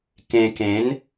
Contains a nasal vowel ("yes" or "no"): yes